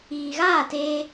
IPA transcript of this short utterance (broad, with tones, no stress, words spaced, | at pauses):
iː˨ɣaː˦˨teː˧